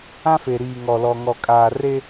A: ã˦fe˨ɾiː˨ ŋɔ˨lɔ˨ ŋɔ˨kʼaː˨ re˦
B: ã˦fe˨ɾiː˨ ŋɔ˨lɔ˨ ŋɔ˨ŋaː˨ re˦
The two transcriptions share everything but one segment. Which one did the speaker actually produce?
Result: A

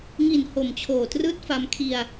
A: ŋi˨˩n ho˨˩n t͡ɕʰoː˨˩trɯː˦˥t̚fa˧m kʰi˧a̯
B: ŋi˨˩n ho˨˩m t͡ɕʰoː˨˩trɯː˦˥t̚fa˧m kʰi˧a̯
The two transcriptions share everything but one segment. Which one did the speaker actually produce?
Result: B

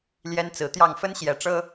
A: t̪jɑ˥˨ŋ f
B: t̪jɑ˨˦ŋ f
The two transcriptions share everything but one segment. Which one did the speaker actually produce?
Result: A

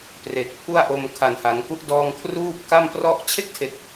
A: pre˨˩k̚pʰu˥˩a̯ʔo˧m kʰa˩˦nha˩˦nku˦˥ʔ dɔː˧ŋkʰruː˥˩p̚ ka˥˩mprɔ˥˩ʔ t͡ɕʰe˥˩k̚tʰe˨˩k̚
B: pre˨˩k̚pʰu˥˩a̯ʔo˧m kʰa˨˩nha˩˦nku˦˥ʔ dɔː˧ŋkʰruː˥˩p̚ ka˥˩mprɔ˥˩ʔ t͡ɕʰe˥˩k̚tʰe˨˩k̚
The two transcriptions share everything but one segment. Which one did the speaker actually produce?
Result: B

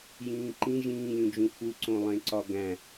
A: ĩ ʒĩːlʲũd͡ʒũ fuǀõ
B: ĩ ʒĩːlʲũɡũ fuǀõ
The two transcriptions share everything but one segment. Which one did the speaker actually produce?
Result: A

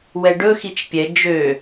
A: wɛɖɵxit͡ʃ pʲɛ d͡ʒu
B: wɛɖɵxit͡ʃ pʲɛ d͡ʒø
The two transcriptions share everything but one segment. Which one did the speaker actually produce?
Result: B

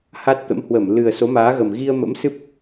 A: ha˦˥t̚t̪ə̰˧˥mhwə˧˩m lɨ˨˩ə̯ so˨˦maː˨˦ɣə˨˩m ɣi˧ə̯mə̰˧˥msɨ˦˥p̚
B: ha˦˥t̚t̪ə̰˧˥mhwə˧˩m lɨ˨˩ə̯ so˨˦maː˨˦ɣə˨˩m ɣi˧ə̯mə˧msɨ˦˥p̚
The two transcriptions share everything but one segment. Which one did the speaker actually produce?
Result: A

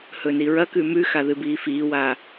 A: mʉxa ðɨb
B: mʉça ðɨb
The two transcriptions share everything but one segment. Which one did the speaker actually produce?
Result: A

